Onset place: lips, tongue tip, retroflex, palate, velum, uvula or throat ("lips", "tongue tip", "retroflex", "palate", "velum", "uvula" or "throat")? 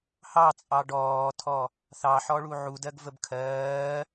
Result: throat